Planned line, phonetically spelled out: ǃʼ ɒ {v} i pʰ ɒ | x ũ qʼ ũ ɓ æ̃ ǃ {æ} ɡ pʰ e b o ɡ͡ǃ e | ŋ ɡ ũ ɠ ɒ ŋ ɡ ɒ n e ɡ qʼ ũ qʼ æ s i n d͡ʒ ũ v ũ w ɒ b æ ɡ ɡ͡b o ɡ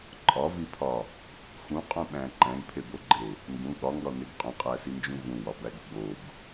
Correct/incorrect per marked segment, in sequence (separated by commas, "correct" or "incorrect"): correct, incorrect